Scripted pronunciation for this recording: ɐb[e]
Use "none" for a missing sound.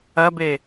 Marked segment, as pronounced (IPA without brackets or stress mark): e